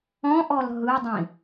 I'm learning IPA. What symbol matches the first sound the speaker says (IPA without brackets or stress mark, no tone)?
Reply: ɔ̃